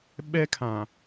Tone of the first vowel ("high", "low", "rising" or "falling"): high